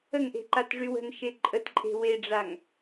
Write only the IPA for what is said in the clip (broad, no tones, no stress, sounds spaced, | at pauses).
ə ŋ ʔ e̤ ǃ a t ʐ y w ə̤ n ʃ e ǃʼ ə t ǃʼ e̤ w e ɖ͡ʐ a ŋ